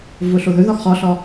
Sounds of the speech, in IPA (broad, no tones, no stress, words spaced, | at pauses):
vʊɬoðɵ ðɒxχɒɬɒ